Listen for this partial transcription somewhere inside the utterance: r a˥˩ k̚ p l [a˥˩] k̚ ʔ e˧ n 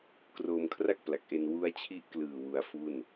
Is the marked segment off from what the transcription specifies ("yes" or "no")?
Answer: yes